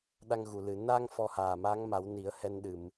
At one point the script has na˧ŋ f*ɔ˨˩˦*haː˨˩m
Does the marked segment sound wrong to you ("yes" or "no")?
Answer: yes